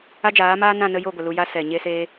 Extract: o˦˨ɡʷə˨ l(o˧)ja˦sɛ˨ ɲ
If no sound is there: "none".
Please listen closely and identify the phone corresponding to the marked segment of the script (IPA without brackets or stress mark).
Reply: u˧